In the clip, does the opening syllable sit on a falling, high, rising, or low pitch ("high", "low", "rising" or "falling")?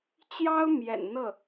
high